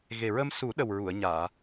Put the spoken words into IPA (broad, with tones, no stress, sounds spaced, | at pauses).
ɣ e˨˩ ɹ ə˧ m s u˨˩˦ ɗ ə˨˩ w ɹ u˨˩˨ ə̯ ɲ aː˨˩˨